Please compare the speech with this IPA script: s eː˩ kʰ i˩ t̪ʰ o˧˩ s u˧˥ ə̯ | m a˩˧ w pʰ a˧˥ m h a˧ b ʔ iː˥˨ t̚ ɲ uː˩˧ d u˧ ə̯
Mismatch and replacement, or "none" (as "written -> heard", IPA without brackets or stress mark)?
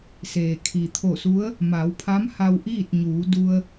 b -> w